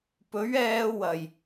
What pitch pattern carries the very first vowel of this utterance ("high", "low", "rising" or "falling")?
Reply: rising